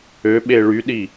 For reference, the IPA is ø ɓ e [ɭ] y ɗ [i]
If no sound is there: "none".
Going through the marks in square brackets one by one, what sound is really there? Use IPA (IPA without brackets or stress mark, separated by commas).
ɭ, i